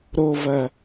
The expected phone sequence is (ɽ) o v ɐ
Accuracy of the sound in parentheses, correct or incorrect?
incorrect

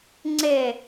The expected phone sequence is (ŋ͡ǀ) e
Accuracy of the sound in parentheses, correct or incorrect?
correct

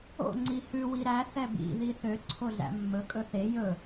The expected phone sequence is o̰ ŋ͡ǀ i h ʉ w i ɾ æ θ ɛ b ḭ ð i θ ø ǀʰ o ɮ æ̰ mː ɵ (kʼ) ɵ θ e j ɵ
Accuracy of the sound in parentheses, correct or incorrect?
correct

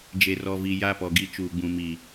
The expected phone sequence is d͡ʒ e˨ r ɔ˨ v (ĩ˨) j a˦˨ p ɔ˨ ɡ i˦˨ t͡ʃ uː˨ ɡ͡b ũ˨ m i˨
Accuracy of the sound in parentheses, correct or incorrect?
incorrect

